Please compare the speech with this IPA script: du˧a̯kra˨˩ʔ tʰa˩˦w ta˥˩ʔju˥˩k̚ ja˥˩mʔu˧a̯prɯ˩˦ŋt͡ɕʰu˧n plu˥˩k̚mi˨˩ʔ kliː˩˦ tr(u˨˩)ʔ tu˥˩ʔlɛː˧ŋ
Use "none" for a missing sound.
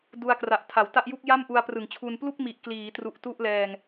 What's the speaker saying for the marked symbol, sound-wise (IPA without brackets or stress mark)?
u˨˩